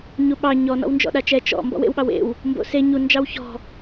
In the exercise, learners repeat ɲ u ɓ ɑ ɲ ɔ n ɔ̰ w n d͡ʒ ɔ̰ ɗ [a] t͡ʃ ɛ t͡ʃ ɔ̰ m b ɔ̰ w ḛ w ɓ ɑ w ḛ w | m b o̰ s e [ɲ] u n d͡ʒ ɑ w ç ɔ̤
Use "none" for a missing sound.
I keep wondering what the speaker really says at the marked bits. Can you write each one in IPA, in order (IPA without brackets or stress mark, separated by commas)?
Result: a, ɲ